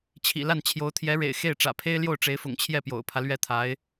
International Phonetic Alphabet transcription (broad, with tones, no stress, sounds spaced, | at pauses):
t͡ɕʰ ḭ˨˩ l a˥˩ n t͡ɕʰ j o˧˥ ʊ̯ t̪ʰ j ɛ˧˥ ɻ ḛ˨˩ ɪ̯ x e˥˩ ɪ̯ ʈ͡ʂ ä̰˨˩ pʰ e˥ ɪ̯ l j o˥˩ ʊ̯ ʈ͡ʂ e˧˥ ɪ̯ f ʊ̰˨˩ ŋ t͡ɕʰ j ɛ˥˩ p j o̰˨˩ ʊ̯ pʰ ä˦ l ɥ ɛ˥˩ t̪ʰ a˧˥ ɪ̯